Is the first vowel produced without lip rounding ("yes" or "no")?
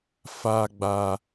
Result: yes